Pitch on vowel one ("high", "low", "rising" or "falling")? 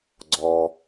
low